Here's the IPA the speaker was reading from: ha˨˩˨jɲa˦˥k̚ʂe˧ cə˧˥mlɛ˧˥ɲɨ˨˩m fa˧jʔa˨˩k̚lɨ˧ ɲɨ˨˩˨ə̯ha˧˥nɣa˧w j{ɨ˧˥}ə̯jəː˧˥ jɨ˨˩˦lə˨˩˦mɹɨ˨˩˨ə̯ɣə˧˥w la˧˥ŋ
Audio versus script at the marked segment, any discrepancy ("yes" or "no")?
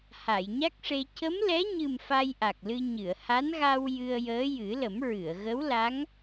yes